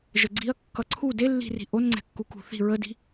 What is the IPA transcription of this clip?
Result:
ʒ ə ɡ͡ǀ i ɐ̯ kː ʌ ǀʰ u d e lː i̤ r i̤ ʔ o n ŋ͡ǀ ɛ̤ kː u k ṳ θ i̤ ɹ ə d i̤

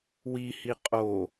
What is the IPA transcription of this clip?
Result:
w i h i qʼ o

